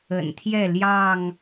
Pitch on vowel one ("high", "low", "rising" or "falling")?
low